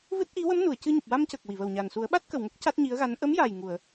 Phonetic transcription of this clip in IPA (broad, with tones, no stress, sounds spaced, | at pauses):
v ɨ˦˥ t̚ ʔ i˧˥ w ə˧˥ m n u˨˩˨ ə̯ c ɨ˧ ɲ u˨˩ p̚ w a˧ m c ə˨˩ k̚ w i˨˩˨ v ə˨˩ w ɲ a˨˩ n s u˨˩˦ ə̯ ɓ a˦˥ t̚ k ə˨˩ w ŋ ə˦˥ k̚ c a˦˥ t̚ ɲ i˧˥ ə̯ ɣ a˧˥ n ʔ ə˧˥ m j a˨˩ j ŋ u˨˩˨ ə̯